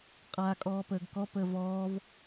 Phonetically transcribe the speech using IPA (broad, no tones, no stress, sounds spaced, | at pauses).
qʼ aː kʼ ɔː p əː ɡ k ɔ p əː v ɔː v